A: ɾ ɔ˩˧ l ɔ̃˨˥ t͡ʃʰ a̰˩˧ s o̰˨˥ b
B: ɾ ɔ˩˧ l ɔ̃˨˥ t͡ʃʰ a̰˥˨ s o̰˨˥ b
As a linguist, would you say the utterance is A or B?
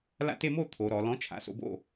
A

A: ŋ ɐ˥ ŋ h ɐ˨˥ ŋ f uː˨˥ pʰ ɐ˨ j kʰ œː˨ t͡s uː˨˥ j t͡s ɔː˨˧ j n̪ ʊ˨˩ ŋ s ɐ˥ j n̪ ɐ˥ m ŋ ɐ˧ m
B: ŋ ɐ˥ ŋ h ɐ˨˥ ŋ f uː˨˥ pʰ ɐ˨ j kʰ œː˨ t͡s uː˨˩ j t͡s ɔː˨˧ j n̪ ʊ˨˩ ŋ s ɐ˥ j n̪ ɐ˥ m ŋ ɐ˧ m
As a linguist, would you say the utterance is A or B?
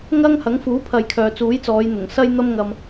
A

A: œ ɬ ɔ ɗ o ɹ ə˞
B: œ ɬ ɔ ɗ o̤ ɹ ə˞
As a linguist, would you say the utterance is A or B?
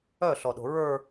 B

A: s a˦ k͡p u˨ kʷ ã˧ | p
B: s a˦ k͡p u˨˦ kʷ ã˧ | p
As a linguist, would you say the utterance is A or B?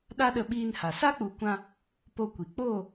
B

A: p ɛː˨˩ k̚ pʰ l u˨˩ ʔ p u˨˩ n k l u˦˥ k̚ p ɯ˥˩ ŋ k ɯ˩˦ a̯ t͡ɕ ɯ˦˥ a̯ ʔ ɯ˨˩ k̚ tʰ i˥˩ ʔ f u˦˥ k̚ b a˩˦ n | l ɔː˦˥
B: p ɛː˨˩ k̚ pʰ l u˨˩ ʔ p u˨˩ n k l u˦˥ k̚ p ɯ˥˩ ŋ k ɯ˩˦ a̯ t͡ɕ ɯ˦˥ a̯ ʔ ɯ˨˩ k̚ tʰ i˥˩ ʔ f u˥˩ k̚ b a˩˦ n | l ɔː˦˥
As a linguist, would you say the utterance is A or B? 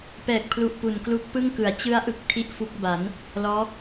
A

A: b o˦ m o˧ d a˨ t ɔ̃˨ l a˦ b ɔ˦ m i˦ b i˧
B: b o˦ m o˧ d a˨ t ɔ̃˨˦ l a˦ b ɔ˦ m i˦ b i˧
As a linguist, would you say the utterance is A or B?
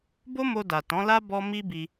B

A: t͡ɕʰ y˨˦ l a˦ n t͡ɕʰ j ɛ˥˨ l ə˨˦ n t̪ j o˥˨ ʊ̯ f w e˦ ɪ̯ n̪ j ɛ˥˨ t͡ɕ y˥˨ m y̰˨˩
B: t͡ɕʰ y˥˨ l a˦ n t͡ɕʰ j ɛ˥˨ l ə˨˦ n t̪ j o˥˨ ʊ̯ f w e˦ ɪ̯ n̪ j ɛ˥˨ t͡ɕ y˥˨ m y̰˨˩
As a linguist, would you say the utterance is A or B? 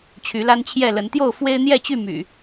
A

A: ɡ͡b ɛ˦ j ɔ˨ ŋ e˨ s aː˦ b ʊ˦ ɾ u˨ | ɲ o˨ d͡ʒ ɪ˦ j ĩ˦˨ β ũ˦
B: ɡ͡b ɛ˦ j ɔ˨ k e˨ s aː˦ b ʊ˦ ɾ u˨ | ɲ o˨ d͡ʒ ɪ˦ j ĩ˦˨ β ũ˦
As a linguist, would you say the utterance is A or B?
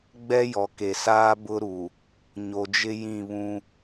B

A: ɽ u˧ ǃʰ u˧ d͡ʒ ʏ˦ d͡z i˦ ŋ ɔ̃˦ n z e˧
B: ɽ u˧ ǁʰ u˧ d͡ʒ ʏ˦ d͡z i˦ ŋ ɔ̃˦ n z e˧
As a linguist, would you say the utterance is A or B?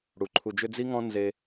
A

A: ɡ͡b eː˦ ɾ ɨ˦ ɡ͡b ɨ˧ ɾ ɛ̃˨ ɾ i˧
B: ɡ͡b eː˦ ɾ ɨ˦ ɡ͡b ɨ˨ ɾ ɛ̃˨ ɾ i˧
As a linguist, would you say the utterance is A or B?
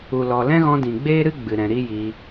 B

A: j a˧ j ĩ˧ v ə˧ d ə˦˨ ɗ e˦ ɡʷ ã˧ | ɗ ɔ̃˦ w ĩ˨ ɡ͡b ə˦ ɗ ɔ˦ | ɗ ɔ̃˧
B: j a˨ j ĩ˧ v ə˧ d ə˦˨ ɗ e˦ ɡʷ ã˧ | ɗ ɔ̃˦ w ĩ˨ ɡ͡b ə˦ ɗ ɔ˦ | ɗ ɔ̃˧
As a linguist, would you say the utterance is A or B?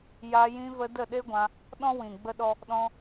A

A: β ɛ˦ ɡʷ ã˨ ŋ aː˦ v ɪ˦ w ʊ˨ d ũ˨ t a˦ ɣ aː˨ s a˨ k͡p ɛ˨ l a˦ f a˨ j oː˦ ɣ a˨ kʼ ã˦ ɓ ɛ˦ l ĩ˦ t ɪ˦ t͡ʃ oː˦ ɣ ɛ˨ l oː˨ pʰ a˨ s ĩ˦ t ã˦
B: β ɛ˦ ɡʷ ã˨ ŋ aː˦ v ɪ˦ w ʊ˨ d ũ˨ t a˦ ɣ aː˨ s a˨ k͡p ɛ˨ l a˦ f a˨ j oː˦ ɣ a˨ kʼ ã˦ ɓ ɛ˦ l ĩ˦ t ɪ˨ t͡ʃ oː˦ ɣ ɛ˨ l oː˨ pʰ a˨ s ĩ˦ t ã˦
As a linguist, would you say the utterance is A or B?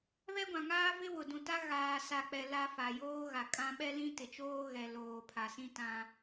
B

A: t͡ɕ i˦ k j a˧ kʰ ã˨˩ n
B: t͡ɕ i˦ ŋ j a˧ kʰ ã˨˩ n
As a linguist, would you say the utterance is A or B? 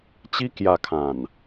A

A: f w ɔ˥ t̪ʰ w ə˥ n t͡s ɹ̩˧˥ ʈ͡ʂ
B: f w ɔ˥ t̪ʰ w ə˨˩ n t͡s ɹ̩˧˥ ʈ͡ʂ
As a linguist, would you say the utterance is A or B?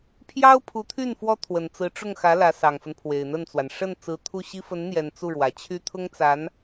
B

